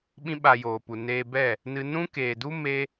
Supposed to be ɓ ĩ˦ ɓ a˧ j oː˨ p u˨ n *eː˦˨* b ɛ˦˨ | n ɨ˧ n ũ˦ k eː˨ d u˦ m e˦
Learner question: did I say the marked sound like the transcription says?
no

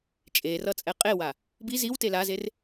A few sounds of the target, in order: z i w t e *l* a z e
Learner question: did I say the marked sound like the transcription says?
yes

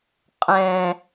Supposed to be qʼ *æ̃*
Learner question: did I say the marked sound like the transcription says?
no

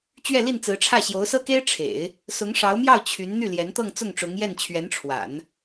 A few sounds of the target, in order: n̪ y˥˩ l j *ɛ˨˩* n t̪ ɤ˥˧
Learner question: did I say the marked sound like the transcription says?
no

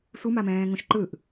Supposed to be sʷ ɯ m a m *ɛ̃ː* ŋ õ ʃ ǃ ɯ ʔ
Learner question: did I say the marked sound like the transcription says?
yes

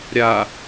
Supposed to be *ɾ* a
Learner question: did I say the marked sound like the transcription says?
no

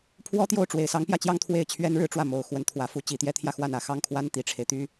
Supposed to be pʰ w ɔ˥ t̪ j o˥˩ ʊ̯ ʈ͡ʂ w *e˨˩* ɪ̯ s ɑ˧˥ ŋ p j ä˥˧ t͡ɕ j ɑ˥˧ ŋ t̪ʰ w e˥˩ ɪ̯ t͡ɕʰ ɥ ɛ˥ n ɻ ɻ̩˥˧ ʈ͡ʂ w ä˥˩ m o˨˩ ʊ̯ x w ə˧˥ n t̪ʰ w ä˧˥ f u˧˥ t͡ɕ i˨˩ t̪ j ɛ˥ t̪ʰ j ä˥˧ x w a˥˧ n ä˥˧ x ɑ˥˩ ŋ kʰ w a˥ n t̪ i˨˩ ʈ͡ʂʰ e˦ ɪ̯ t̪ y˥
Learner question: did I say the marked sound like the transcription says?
yes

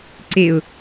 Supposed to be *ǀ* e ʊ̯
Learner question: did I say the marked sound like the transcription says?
yes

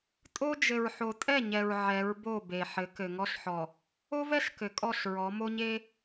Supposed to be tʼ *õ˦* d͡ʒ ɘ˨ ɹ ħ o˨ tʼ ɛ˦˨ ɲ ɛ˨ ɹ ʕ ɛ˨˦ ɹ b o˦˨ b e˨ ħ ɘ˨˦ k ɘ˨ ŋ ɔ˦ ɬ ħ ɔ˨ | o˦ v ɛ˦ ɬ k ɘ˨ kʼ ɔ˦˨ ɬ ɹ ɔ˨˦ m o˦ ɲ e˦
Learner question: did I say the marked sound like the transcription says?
no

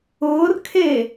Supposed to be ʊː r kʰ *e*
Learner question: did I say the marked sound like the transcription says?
yes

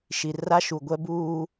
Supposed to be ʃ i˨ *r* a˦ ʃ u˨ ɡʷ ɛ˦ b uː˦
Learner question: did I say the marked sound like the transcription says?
yes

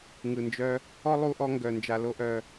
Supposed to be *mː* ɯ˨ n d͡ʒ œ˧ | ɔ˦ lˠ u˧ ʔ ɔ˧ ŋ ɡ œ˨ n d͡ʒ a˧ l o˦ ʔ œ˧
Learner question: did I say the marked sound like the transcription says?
no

